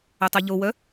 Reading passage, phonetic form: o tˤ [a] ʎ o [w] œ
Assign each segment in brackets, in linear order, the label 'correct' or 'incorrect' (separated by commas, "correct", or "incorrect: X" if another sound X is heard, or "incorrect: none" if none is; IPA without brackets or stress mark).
correct, correct